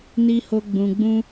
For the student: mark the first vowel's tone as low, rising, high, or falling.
high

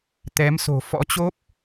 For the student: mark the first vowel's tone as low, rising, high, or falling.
rising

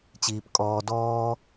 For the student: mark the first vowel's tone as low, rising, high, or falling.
low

